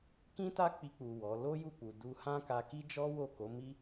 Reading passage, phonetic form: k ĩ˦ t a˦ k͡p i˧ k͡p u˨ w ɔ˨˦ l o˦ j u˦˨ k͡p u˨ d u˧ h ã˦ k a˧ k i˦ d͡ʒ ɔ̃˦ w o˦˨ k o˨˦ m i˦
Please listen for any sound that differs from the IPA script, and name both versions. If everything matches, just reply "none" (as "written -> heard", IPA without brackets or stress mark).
ɔ̃˦ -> ɔ˦